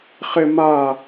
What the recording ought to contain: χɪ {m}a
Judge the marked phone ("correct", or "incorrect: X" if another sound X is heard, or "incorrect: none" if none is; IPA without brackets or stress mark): correct